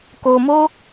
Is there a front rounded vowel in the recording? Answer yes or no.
no